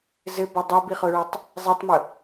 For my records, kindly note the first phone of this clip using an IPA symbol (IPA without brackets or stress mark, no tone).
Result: z